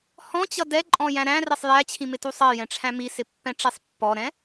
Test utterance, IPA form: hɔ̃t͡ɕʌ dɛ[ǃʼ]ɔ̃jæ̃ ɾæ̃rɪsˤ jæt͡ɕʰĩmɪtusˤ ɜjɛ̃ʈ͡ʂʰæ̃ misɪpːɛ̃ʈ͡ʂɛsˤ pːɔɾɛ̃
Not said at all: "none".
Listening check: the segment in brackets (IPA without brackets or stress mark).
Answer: ǃʼ